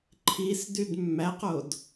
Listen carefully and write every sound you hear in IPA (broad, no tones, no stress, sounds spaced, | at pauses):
ǃʰ i s d y d mː æ q o d